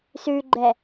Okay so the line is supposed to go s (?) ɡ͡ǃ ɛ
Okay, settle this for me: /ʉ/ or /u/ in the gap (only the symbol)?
ʉ